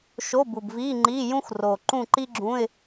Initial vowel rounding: rounded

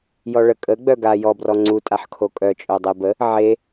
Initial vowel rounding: rounded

